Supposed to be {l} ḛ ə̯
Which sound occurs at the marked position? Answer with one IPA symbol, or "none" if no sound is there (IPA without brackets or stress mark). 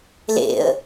l